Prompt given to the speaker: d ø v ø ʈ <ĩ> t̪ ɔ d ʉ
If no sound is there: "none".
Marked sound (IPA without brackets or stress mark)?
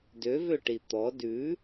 i